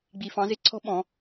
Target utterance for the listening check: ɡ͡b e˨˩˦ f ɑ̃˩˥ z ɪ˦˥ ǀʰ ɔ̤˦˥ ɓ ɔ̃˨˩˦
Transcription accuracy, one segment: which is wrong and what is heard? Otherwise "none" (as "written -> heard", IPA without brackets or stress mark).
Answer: e˨˩˦ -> i˨˩˦